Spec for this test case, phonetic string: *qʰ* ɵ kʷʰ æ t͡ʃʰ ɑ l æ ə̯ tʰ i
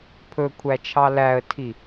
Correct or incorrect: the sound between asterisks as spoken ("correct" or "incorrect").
incorrect